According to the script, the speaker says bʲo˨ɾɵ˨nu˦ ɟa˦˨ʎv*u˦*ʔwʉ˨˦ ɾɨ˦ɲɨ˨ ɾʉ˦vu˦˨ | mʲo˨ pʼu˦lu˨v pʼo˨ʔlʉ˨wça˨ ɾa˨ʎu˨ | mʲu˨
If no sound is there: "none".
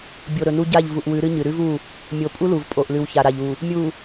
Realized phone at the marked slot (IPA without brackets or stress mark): u˨